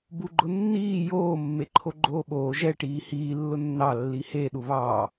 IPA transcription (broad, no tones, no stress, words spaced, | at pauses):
buɡ͡ǃʊnːiː joː mːeǃʰoɡ͡ǃoːɓoː ʒɛ ʈiːhiː lːʊnːɑ lːihe ɗuβɑː